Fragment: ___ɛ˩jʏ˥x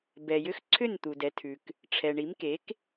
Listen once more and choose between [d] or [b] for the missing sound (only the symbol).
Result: b